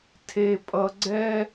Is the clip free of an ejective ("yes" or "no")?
no